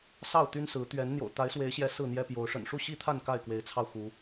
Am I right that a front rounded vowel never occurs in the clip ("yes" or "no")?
no